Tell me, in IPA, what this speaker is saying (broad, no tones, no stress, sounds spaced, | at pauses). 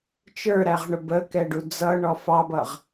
t͡ʃ ə˞ ɾ æ ʁ ɳ ʊ b ə k ɛ ɖ u d͡z ʌ ɳ ɔ f ɑ b ʌ ʁ